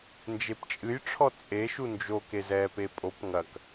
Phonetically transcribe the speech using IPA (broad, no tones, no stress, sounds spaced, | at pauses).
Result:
n d͡ʒ e p t͡ʃʼ ɨ j ʈ͡ʂʰ ɔ t͡sʼ e ʃ u n d͡ʒ o k e z ɛ p e pʼ o p ŋ ɐ k